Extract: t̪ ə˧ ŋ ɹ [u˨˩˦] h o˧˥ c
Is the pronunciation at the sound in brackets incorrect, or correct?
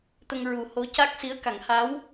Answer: correct